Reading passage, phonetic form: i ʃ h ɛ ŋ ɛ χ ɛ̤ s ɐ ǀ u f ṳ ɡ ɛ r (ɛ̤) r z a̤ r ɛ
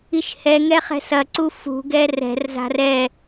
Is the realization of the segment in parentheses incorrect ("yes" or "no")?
no